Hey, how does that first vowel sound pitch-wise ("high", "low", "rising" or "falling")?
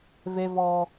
high